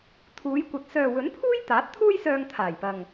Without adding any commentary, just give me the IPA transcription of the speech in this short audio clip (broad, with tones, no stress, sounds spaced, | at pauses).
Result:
t̪ʰ uː˨˧ j kʷ ɐ˨ t̚ s œː˨ w ɵ˨˥ n pʰ uː˥ j t̪ aː˨˥ t̚ t̪ʰ uː˥ j s œː˧ ŋ t̪ʰ aː˨˩ j p ɐ˨ ŋ